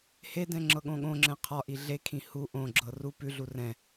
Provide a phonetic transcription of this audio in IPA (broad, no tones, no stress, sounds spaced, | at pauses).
h e d ɛ̃ ŋ͡ǁ ɤ ɠ õ ɠ õ ŋ͡ǁ ɛ̃ qʰ ɒ ʔ i ɮ e kʰ ĩ h u ʔ õ ɡ͡ǁ ɤ r u p ʉ ɮ u r ɛ̃